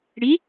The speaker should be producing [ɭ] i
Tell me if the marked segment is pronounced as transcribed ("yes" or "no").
no